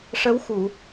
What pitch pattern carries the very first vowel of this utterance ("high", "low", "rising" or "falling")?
rising